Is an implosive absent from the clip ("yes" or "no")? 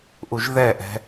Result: yes